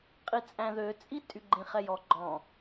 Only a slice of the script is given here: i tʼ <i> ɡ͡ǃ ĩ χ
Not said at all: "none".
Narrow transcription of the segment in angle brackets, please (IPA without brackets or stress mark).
y